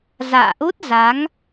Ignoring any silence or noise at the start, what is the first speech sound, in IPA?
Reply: z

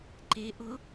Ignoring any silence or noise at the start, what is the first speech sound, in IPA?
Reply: ǃ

